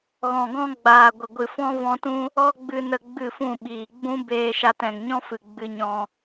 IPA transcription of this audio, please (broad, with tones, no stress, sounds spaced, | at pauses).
ɣ ɔ̃˨ ɡ ɔ̃˦ ɡ͡b aː˨ ɡʷ ə˨ ɡʷ ɨ˨ f ɔ̃˦ v ɔ̃˧ t ũ˦ | ɔ˦ ɡ͡b ɨ˧ n ə˧ ɡ͡b ɨ˦˨ f ũ˦˨ ɓ iː˨ ɡ͡b ũ˦ b eː˧ ʃ a˧ t ɛ̃˨ ŋ ɲ ɔ̃˦ f ɨ˨ ɡ͡b ɨ˧ ɲ ɔ̃˧